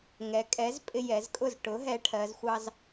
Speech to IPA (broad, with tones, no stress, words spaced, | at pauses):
ŋɛ˩˧kʼɛ˨˥z pʼɪ˧ jɛ˩˧zkʼʊ˥˩z ʈʊ˩˧ ɦɛ˨˥ʈʰɜ˩˧z xʷɑ˧z